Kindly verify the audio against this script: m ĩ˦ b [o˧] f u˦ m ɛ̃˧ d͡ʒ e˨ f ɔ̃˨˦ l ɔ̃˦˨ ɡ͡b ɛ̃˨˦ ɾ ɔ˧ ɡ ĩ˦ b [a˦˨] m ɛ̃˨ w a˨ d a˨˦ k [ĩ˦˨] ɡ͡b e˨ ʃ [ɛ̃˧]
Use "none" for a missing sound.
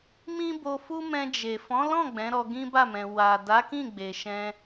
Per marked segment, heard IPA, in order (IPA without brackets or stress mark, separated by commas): o˧, a˦˨, ĩ˦˨, ɛ̃˧